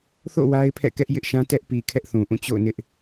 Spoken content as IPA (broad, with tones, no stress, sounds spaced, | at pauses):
θ o̰˦˨ w a˦ ɪ̯ pʰ ɛ̰˦˨ k ɛ˦ ʔ j ɪ˦ ʔ ʃ ã˦ t ɛ˦ ʔ p i˨ kʰ ɛ˦ ʔ θ ũ˨ ʔ ũ˦˨ t͡ɕ o̰˦˨ ʊ̯ n ɪ˦ ʔ